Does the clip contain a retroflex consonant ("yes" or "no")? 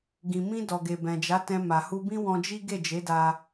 no